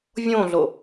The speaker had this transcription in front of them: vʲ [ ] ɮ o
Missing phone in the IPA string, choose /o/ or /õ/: õ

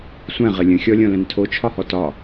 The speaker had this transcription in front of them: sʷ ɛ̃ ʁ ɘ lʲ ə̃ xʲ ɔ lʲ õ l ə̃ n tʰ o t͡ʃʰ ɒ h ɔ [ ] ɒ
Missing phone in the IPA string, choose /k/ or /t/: t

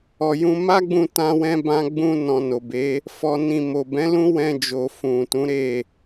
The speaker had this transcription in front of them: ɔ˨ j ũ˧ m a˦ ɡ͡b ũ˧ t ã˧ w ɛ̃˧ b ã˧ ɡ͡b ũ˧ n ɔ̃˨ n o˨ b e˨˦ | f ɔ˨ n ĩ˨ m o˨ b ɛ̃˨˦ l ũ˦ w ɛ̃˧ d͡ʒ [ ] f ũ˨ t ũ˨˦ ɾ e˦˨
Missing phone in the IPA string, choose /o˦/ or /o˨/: o˨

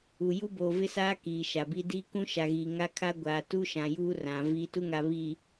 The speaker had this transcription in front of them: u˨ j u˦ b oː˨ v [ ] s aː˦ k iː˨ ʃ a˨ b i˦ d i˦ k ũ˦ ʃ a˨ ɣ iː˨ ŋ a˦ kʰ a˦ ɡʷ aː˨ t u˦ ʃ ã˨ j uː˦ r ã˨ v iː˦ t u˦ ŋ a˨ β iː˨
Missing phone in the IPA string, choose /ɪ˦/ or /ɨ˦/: ɪ˦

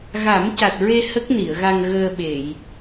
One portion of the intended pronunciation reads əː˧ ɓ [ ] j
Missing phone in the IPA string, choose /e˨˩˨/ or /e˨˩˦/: e˨˩˨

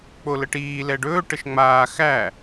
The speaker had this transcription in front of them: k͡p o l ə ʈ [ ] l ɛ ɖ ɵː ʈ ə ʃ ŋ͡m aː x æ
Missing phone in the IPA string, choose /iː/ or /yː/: iː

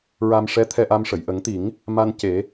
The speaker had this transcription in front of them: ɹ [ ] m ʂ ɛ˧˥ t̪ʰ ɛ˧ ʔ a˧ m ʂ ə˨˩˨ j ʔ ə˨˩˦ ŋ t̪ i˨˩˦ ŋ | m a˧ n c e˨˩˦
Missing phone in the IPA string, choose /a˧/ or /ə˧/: a˧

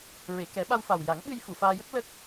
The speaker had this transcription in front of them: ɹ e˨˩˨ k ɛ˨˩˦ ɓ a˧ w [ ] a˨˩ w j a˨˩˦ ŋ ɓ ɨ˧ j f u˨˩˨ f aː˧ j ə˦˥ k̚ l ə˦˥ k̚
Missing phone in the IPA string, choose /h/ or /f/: f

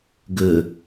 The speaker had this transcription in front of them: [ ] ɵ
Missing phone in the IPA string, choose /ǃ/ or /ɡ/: ɡ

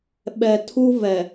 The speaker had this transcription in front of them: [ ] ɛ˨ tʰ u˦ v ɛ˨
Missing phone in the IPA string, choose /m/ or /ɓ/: ɓ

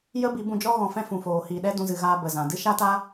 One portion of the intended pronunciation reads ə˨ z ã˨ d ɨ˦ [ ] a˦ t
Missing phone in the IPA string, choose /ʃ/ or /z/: ʃ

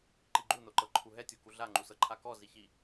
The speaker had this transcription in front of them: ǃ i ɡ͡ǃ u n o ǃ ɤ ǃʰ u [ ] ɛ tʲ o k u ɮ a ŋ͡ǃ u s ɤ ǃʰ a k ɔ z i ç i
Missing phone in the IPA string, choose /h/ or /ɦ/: ɦ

